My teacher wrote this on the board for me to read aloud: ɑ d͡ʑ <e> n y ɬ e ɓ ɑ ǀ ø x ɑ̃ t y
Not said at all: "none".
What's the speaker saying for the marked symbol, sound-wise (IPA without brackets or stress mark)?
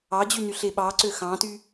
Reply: y